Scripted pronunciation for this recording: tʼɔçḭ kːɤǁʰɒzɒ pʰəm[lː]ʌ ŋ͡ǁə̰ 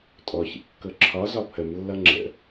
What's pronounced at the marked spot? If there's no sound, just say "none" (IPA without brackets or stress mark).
lː